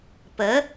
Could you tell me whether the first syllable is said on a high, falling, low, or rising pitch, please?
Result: rising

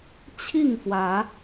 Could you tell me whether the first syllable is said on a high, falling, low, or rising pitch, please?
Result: falling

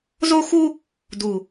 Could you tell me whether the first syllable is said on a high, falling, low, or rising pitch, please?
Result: high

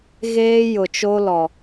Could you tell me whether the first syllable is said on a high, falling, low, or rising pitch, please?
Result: high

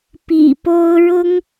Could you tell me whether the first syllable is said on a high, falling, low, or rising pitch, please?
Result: low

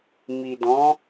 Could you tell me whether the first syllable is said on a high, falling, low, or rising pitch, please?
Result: low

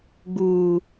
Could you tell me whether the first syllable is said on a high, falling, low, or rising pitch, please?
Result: low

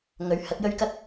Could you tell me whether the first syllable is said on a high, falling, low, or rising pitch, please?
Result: rising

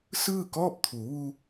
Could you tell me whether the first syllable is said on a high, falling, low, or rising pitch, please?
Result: falling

